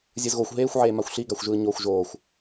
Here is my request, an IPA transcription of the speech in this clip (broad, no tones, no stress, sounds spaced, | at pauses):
zʲ ɯ z ɣ o xʷ ɦ eː xʷ ʕ eː m a xʷ ɬ i ɡ a xʷ ʒ ɯː ɲ oː xʷ ʒ oː xʷ